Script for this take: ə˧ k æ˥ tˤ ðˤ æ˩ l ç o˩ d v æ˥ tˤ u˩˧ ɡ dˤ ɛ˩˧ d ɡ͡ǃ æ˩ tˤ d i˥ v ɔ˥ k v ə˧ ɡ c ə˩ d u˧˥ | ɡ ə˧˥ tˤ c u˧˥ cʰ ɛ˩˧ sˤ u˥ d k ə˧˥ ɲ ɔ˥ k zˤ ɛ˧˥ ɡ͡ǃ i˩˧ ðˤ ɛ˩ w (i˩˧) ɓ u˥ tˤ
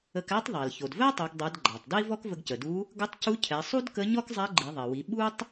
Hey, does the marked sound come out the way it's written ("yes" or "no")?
yes